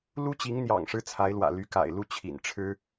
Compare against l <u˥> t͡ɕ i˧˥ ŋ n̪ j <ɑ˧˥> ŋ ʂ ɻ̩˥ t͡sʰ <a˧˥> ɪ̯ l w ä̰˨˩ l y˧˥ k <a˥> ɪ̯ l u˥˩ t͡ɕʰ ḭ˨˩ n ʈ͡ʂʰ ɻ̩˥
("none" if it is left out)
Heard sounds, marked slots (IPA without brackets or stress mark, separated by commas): u˥, ɑ̰˨˩, a˧˥, a̰˨˩